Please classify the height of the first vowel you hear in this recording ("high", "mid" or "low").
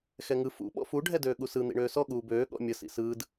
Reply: mid